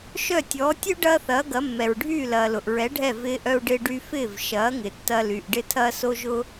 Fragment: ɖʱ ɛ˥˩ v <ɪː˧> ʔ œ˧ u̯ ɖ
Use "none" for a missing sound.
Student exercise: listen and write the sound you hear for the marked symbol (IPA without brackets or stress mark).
ɪː˧